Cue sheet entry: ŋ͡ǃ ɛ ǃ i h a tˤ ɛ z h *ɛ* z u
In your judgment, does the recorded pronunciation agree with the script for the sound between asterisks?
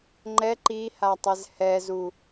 yes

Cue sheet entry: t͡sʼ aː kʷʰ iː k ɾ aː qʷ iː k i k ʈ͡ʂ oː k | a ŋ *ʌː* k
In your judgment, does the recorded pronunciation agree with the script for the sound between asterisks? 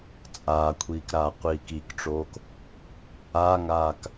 no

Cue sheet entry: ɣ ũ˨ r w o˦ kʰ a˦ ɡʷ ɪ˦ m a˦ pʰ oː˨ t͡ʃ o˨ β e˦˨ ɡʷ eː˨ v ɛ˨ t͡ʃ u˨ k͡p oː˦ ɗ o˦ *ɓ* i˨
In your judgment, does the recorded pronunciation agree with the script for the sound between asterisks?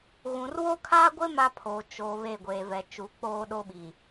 yes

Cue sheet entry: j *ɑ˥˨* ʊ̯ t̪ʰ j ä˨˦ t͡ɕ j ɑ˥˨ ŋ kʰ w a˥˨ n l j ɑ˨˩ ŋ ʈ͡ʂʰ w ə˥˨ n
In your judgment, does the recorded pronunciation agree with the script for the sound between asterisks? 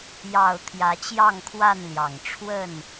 yes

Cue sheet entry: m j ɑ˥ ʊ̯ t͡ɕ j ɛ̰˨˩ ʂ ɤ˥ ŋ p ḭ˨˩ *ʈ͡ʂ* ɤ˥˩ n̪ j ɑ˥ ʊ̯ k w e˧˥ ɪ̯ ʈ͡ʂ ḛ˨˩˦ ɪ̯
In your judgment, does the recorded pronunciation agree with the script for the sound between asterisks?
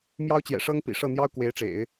no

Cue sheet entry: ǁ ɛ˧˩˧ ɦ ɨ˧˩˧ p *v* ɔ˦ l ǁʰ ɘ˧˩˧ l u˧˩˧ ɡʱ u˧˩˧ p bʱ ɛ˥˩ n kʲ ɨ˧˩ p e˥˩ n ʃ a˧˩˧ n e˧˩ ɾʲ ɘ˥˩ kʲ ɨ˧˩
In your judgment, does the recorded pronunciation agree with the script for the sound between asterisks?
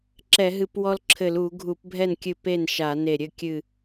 no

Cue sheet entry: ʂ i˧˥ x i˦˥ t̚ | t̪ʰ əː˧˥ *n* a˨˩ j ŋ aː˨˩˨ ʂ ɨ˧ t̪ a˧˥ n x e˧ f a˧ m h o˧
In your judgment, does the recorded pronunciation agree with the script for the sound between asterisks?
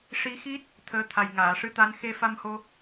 no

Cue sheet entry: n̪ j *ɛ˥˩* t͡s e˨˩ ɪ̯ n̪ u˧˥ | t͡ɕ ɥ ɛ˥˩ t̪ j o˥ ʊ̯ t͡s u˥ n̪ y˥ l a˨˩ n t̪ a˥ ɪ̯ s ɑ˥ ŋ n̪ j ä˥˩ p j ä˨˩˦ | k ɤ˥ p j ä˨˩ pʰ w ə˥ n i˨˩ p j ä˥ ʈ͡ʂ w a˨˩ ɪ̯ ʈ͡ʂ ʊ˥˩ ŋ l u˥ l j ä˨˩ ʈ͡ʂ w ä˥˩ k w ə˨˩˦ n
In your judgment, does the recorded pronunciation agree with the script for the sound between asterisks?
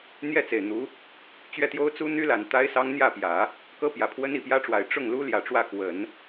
yes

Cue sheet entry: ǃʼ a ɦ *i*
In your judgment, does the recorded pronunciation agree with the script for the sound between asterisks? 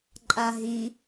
yes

